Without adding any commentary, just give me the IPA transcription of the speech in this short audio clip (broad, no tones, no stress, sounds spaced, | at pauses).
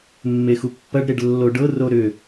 mː e x u pː ɐ ɖ ɾ e ɖ lː o ɖ ɤ r o ɾ ʏ